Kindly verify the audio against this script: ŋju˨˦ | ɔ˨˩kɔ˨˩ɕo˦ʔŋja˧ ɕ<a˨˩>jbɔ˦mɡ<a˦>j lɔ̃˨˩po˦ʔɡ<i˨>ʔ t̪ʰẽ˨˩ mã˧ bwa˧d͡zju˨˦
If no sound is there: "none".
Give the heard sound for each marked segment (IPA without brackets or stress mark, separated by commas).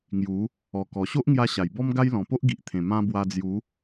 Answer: a˨˩, a˦, i˨